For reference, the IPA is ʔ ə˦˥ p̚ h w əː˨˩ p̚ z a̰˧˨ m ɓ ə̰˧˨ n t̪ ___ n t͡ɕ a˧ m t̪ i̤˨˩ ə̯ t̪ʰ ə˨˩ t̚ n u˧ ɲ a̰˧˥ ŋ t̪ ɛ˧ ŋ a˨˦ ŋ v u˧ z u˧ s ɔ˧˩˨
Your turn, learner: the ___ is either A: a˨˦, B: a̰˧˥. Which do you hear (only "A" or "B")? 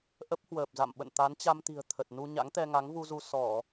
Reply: A